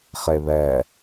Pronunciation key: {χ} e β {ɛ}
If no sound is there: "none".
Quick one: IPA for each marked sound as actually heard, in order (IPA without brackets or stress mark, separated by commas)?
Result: χ, ɛ